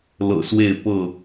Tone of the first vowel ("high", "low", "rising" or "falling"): low